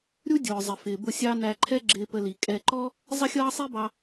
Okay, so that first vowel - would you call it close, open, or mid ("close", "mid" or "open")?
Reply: close